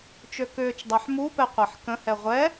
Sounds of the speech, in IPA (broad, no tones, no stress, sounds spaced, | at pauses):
t͡ʃ ø k ʏː t͡ʃ dˤ a ħ m u p ɛ qʷ a ħ k ə̃ h ɛ ʁʷ ɛ